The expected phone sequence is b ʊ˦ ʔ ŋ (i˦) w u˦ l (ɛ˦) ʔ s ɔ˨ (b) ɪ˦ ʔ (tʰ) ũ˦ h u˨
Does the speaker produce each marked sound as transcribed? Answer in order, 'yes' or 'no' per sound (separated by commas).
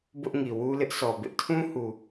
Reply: no, no, yes, yes